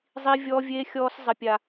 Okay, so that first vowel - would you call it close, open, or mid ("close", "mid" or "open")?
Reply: close